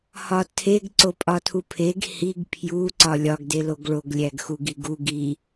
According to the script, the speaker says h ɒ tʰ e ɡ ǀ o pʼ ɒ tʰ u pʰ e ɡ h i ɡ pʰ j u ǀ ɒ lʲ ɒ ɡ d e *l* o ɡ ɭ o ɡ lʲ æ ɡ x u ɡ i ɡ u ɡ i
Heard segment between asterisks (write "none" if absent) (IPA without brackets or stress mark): l